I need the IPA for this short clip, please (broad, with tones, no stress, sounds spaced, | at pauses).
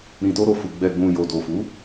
ɾ ĩ˨ t o˧ ɾ o˨ f u˨ ɡ͡b ɛ˨ ɡ͡b ũ˨ j o˨ d o˨ f u˨˦